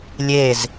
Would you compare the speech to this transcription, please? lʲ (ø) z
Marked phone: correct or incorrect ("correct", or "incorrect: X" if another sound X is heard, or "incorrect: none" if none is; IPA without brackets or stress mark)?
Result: incorrect: e